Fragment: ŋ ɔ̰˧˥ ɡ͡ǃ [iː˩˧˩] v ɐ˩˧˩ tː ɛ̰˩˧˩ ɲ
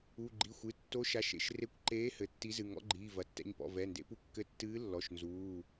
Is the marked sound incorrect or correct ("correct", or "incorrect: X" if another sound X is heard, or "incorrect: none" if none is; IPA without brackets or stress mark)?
correct